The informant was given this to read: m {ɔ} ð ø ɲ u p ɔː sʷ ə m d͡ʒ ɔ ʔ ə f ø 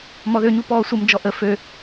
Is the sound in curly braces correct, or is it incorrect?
correct